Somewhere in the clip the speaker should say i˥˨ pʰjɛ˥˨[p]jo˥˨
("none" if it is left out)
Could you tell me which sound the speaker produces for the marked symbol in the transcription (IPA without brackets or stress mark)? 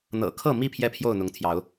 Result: pʰ